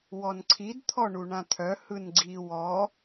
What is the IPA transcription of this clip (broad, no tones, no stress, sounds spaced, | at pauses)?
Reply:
w ɔ n ǀʰ i d t̪ʰ ɔ ɳ u ɳ ã t̪ʰ œ h ɯ n ɡ͡ǀ i w ɔ